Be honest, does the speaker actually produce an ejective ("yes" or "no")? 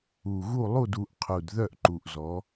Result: no